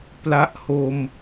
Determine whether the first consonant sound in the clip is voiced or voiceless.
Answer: voiceless